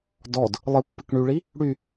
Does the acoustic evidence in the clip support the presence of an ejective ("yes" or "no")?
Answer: no